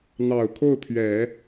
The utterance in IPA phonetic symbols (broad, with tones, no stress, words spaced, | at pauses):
n̪ɑ˨˩ʊ̯ kʰo˥˩ʊ̯pʰɥɛ˨˩˦